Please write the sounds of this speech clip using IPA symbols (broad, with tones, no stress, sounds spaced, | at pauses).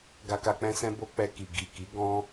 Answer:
ɡ a˧ k a˧ k͡p ɛ̃˦ s ɛ̃˦ b o˦ k͡p ɛ˧ k i˨ ɡ i˨ k i˨˦ ɡ ɔ̃˦